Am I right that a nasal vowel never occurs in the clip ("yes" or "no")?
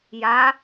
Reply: yes